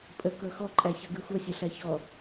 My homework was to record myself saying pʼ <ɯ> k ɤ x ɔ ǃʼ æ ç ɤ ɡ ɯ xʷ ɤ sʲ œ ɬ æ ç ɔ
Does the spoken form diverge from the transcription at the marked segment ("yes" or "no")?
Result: yes